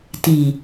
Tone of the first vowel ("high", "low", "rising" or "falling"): low